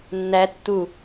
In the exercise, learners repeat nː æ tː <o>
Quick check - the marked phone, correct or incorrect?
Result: incorrect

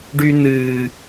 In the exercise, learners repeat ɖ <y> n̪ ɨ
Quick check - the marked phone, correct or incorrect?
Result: correct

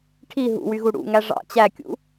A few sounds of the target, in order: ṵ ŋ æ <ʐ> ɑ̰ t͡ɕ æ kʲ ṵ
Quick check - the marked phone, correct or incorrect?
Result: correct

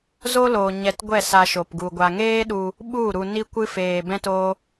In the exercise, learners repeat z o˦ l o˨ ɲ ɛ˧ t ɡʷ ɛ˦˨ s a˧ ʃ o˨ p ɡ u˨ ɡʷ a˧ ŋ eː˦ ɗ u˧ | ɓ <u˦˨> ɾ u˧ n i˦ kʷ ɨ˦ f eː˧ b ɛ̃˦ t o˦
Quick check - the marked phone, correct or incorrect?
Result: correct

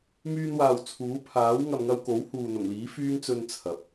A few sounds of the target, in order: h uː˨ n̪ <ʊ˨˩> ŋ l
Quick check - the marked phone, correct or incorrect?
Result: correct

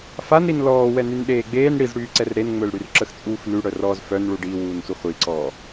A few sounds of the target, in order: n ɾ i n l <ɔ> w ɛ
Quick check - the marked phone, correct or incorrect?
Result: incorrect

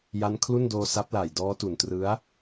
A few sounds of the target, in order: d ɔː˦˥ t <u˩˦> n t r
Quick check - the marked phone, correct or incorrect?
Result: incorrect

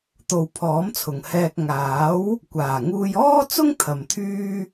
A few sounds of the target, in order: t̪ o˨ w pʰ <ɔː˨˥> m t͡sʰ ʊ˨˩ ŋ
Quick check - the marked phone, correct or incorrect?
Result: correct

